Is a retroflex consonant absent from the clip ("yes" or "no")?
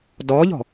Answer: yes